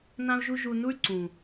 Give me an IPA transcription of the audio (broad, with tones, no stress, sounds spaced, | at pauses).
n ã˦ u̯ ʒ u˦ ʒ u˧ n u˦ y̯ ǀ ũ˨